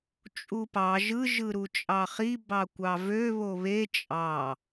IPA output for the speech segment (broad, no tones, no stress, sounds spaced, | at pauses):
t͡ʃʼ u p ɑ ʒ ɯ ʒ ɯ ɾ u t͡ʃʼ ɑ χ i b ɑ kʷ ɑ v ø β o β e t͡ʃʼ ɑ